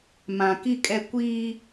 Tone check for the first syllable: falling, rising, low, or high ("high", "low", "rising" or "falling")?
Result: low